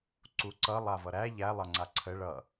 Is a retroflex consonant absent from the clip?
no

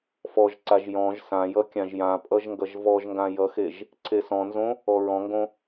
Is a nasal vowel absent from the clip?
no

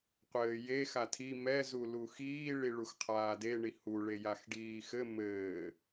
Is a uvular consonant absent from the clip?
no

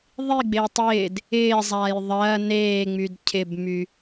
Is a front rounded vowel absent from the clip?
no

